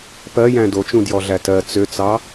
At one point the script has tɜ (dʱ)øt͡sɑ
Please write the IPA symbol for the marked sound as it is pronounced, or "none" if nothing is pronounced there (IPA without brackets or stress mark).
t͡s